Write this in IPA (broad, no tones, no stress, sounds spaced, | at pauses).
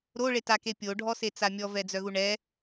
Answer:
ɾ o ɭ e t a k e pʲ o ɖʱ ɔ s e t͡s a mʲ ɔ v ɛ d͡z œ ɣ u ɳ ɛ